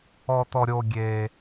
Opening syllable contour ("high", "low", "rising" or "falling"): low